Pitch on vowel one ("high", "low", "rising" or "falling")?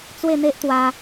falling